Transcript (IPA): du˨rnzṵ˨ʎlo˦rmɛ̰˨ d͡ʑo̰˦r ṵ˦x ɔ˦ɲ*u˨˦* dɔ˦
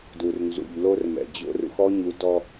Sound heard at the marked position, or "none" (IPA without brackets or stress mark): u˨˦